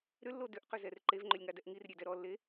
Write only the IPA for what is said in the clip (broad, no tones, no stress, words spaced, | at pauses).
ɾʏlːo dʏʔqʏzɛr ǃevŋ͡ǃʏlʲŋadɛʔ ŋirɾʲedɛ ɾɔlːe